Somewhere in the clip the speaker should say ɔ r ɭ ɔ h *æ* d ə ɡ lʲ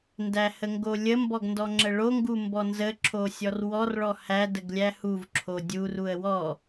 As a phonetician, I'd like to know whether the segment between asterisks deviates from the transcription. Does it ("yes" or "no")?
no